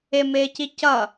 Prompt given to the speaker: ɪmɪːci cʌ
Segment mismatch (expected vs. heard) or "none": none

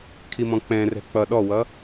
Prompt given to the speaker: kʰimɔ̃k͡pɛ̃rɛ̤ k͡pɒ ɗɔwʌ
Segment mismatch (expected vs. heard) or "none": ɒ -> ʌ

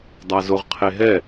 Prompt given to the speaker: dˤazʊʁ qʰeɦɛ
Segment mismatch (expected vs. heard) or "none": none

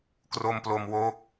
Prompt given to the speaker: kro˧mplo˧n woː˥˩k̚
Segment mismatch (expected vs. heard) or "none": n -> m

